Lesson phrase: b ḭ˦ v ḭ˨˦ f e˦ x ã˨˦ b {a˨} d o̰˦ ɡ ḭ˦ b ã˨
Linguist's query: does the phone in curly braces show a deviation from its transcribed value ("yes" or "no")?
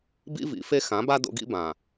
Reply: yes